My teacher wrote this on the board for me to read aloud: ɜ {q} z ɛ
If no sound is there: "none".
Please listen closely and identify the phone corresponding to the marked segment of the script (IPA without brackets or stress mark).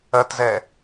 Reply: t